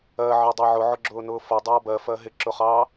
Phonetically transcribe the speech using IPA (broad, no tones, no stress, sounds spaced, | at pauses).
ɜ ʕ ɑ dˤ ɜ ʕ ʊ ʕ ʊ ɡ͡ǁ ʊː n ʊː f ʌ dˤ ʌː b ɜ f ɜ ɦ ɪ ǁ ʊ χ ɑː